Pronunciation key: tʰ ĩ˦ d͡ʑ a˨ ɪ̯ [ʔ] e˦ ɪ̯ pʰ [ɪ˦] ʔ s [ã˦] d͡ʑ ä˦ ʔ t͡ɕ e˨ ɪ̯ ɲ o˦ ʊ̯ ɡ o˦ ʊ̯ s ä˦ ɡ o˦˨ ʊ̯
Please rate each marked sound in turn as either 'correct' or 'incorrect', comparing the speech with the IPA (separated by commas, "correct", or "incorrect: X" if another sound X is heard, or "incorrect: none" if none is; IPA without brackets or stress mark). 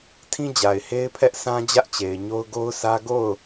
incorrect: h, incorrect: ɛ˦, correct